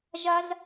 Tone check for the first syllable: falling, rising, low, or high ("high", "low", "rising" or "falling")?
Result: high